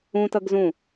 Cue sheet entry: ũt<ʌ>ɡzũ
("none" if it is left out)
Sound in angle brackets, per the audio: ʌ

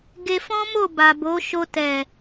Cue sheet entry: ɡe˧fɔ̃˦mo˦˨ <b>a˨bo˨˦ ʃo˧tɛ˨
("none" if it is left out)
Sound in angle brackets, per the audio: b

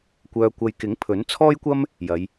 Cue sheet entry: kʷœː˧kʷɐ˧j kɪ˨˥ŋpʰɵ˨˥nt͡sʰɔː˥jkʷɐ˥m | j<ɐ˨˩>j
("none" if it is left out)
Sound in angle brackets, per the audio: ɐ˨˧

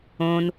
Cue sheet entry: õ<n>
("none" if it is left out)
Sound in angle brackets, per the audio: n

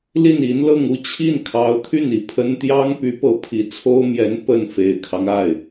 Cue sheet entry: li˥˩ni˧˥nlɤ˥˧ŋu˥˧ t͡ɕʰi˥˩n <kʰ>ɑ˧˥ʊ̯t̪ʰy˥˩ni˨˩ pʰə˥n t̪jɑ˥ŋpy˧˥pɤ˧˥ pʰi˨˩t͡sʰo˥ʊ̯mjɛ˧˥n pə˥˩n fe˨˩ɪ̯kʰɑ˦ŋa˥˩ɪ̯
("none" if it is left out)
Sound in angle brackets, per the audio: kʰ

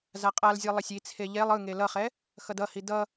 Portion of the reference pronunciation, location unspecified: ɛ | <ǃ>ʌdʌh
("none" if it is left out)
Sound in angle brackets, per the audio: x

